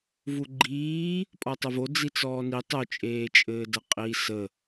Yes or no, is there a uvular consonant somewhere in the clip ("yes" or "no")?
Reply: yes